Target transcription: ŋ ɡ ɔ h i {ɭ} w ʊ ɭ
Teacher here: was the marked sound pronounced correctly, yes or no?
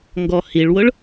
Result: yes